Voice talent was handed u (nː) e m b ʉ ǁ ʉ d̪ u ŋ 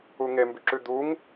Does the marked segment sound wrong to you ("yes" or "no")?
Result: yes